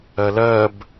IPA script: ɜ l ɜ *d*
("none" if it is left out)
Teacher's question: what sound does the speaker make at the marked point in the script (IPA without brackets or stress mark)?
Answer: b